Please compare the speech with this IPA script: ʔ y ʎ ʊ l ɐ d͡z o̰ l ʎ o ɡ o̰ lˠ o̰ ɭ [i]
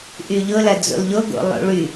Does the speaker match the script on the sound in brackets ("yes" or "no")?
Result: no